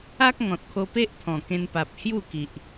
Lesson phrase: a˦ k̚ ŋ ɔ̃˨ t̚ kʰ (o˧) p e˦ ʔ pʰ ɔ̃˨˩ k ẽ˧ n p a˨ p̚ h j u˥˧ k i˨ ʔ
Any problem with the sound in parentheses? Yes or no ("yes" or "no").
no